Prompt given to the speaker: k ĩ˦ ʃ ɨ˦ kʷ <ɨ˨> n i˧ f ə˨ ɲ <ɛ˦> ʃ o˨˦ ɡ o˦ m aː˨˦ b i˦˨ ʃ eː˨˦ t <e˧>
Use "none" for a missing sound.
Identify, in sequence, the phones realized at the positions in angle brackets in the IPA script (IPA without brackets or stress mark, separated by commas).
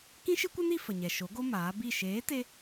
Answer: ɨ˦, ɛ˨, e˧